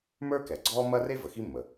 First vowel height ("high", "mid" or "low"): mid